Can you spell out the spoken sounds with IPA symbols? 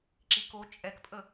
ǁ i k o t͡ʃʼ ɛ k pʼ ə

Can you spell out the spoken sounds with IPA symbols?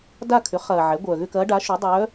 d a˥˧ kʰ ʏ˩˥ χ ɐː˨ ʕ ɛ˩˥ ɡʷ œː˨ ɣ ʏ˥˧ k ɐː˧˥ ɖ a˩˥ ʃ y˩˥ dˤ œː˧˥

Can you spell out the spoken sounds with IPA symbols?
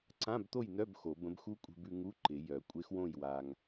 ǀ ã˧˥˧ b t̪ o˥˨ j n œ˧˥˧ b x o˨˩˦ b ə̃˧˥ b x u˧˥ kʷʼ e̤˧ b ʉ˧ ŋ u˧˥˧ ǃ ɪ˨˩˦ j œ˨˩˦ kʷʼ e˧˥ x w õ˥˨ j w a˧ ŋ

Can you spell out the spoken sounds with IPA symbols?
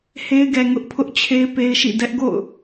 h e˦ ɪ̯ ɡ ɛ˨ ŋ ʊ˦ ʔ pʰ ʊ˦ ʔ t͡ɕʰ e˦ ɪ̯ p e˦ ɪ̯ ʃ ḭ˦˨ d ɛ˦ ʔ ɡ o̰˦˨ ʊ̯

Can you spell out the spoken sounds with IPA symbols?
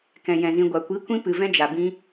k ɛ̃˨ j ɛ̃˨ z ĩ˨ ɡʷ a˨ kʷ i˨˦ kʷ ĩ˧ p ɨ˨ v ɛ̃˧ d͡ʒ a˨ b ĩ˧

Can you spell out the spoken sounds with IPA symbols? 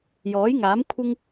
j ɔː˨˥ j ŋ aː˨˥ m kʷʰ ɪ˥ ŋ

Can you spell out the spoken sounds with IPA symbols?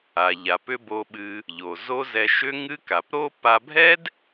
a˩ ʎ a˩ p ʏ˥ b o˧ ɓ ɨ˧ | ʎ o˩ z o˥ z ɛ˧ ʃ ʏ˥ ŋ ɨ˥ k a˩ p ɾ o˥ p a˧ bʱ ɛ˥ d

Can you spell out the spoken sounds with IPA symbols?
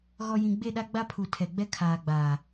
ɣ ɔ˨ j ĩ˨ ɡ͡b e˦˨ ɗ a˦ ɡ͡b a˦ pʰ u˨ tʰ ɛ˨ ɡ͡b ɛ˦ kʰ aː˨ ɡ͡b aː˨

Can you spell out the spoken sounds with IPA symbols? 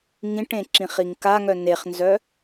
ŋ ĩ ʈ ẽ ǁ ĩ χ i ŋ k a ŋ œ n e χ n z œ

